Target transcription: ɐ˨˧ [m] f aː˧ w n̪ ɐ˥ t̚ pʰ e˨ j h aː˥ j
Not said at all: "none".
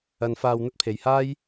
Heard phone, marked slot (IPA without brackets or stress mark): n